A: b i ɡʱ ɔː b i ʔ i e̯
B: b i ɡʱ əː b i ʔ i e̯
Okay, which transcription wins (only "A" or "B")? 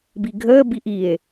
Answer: B